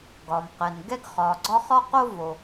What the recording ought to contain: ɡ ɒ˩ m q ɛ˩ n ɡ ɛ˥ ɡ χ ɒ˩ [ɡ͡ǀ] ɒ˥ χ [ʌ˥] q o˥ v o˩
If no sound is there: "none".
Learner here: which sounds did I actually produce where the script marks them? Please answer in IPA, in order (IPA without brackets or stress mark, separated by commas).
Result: ɡ͡ǀ, ɒ˥